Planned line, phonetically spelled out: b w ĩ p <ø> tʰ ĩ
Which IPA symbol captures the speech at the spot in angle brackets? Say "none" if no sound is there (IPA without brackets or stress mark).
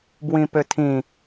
ø